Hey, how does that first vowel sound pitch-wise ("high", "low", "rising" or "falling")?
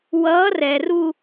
rising